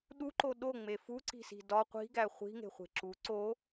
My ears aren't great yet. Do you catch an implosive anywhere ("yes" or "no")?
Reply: yes